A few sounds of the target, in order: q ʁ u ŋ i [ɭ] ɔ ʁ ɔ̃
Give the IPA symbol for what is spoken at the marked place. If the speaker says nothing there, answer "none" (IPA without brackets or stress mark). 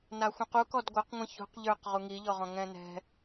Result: ʎ